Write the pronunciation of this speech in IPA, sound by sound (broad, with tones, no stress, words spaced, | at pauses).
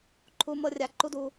ǃʰu˧ mɤ˦rʲa˧ǃu˦du˧